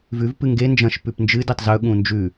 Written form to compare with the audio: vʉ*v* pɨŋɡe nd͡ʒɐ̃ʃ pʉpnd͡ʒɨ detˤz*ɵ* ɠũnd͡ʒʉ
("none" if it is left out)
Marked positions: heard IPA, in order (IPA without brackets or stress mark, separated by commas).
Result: v, ɵ